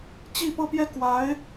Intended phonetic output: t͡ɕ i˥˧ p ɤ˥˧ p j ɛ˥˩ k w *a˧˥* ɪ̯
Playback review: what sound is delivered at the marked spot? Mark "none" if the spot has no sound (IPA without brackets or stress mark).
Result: a˧˥